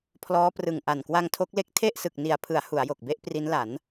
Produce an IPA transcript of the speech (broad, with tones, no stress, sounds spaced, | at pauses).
pʰ l ɔː˦˥ p r ɯ˨˩ ŋ ʔ a˨˩ n k w a˧ ŋ tʰ o˦˥ k̚ l e˥˩ k̚ tʰ e˥˩ ʔ s ɯ˨˩ k̚ n i˨˩ a̯ pʰ ɯ˩˦ a̯ h u˩˦ a̯ j o˨˩ k̚ b e˦˥ ʔ p r i˦˥ n l a˩˦ n